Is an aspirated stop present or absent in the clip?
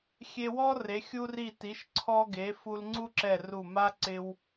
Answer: present